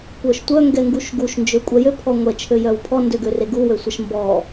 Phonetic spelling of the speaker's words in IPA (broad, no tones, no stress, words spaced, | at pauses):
kʷœʃtʷœ ŋɡɛŋɡuʃɡuʃ nd͡ʒøkʷʼɛjø pʰɔŋʷɛ t͡ʃʰøjœwpʰɔ ndøɡøreɡu wøsʷɛʃmbɔ